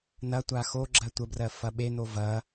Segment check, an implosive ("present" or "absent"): present